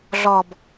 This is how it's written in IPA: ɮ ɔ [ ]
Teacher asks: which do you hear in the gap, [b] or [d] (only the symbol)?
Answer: b